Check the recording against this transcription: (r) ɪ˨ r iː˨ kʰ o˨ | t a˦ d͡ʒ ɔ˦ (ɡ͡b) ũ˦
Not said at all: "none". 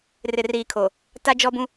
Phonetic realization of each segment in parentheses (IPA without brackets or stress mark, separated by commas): r, b